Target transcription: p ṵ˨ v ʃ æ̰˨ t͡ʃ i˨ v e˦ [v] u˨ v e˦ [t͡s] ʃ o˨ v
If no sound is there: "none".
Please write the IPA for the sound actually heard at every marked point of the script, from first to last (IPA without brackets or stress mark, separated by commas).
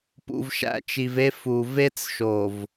f, t͡s